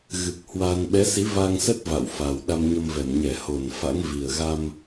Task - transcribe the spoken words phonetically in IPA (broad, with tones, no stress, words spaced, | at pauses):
ɣɨ˨˩k̚hwa˧n ɓɛ˨˦si˨˦va˧ŋsə˦˥t̚ va̰˧˨wfa˨˩w ɗa˧mɲə˧mvɛ˧˩m ɲɛ˧˩ho˧˩n fa̰˧˥ŋvi˨˩ə̯ ɣa˧m